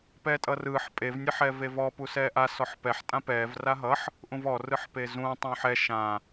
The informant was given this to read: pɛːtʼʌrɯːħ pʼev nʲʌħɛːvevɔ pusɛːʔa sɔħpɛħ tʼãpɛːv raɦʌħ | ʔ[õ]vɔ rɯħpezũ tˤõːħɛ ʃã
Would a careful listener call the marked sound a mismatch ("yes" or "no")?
yes